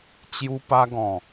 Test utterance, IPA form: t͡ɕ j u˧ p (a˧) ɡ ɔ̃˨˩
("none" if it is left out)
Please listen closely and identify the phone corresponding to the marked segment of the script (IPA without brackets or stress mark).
a˧